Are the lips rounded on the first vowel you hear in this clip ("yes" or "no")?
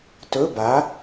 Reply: yes